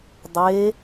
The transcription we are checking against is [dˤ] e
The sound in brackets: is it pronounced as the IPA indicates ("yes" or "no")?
yes